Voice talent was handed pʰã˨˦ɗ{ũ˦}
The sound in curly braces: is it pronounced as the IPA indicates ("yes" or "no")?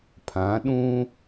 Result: yes